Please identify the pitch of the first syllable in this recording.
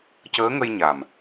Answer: rising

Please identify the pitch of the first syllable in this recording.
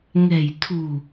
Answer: low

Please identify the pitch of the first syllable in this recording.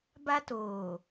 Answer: high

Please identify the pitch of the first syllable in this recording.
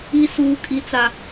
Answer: high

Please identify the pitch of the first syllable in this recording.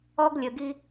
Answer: high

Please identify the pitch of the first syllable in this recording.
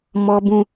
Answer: low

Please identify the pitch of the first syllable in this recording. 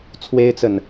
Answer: high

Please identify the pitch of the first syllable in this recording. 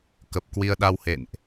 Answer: low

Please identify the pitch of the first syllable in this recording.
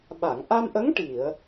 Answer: low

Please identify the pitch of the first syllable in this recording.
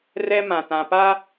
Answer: high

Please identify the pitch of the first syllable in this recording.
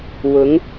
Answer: rising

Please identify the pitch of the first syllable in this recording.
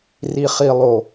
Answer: low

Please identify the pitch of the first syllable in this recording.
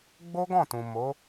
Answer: high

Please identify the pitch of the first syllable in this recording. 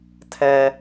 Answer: high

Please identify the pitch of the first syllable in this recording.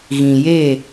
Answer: low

